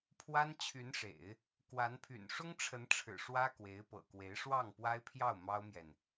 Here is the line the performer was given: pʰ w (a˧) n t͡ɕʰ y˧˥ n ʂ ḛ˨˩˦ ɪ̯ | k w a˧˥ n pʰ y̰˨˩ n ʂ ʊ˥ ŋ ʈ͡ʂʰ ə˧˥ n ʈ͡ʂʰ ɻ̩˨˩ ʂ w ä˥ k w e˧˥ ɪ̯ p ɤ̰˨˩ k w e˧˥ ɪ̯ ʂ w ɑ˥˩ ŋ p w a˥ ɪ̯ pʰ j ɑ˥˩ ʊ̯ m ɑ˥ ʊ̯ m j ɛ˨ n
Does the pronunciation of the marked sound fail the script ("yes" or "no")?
yes